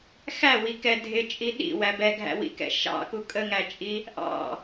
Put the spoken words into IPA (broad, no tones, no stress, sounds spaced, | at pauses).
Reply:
x æ w i k ɛ dʱ ɪ t͡ʃʼ i ɗ ḭ w æ b ɛ ɡʱ æ̰ w ḭ k ɛ̰ ʃ ɑ̰ k u kʼ ə ŋ æ t͡ʃʼ i | ʔ ɑ̰